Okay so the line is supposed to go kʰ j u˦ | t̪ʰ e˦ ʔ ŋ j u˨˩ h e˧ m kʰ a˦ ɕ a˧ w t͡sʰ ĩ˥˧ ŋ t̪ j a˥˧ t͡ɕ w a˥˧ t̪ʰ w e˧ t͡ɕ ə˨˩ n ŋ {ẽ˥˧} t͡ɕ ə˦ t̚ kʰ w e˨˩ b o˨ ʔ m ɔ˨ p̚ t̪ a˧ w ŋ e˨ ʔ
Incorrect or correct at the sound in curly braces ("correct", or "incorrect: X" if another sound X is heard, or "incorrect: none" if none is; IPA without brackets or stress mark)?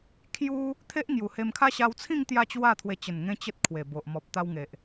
incorrect: ẽ˧